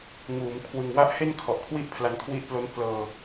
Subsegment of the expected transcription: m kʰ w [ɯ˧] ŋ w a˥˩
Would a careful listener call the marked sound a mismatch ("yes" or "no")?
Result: yes